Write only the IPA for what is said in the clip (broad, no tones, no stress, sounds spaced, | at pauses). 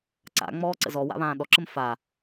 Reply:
ǀ a̰ ŋ͡m ɔː ǀ ə̰ z ɔ w a̰ β ãː ɗ ɔ ǁ ə m f a